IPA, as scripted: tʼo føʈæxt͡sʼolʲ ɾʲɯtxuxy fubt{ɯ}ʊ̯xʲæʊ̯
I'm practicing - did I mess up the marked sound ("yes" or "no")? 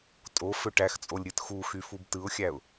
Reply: no